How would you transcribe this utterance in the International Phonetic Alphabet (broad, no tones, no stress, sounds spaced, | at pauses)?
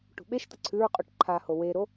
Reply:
ʈ ṳ ɓ e ʃ t̪ ɐ ǀʰ ʉ ɹ qʼ o ʈ ǃʰ a h o w e ɾ o